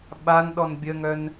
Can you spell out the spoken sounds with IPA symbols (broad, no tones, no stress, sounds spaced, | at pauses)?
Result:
ɓ a n ɗ ɔ n bʲ ə ŋ œ n